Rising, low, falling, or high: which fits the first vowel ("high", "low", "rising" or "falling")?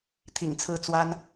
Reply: low